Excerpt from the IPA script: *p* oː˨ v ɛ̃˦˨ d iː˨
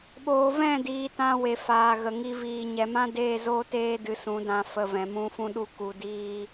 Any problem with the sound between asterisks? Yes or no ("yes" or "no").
yes